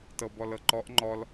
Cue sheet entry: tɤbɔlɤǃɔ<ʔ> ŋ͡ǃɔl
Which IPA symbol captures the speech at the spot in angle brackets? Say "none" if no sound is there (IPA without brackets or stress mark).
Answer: ʔ